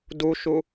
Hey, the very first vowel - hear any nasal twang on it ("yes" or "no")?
no